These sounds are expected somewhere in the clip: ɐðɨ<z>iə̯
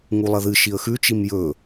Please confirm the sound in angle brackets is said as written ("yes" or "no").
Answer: no